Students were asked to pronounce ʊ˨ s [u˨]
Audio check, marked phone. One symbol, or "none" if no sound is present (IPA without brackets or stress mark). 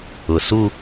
u˦